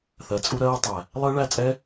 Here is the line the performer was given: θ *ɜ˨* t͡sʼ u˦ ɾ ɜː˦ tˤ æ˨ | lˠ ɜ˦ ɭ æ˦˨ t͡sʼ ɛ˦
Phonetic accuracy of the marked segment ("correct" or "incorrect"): correct